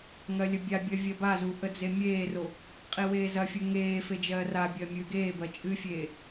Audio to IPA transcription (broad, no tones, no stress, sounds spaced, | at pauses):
ŋ ɜ lʲ ə bʲ a bʲ ɜ vʲ ɜ b a z u ʔ ə d͡z e mʲ eː r o | qʼ i w eː z ɐ fʲ u ŋ eː f e d͡ʒ ɜː r a bʲ ɜ mʲ ɨː ɡ eː b ɜ t͡ʃʼ ɨ fʲ eː